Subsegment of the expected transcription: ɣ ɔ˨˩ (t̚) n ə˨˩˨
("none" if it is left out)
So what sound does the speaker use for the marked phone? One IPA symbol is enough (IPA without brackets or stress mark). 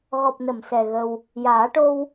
p̚